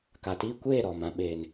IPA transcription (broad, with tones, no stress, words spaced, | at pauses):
ka˨tiː˦kʷeː˦˨ ɾɔ˨mã˨ ɓeː˨n